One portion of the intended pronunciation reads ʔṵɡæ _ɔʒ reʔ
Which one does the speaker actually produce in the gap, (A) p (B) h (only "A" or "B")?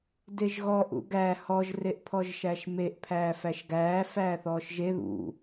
B